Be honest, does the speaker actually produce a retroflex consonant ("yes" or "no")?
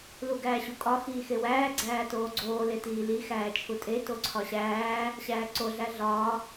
no